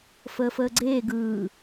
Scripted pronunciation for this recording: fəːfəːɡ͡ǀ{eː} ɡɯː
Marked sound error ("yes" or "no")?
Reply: no